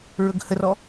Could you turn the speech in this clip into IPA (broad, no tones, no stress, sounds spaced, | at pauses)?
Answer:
ɹ ɵ ɡ h ə r ɔ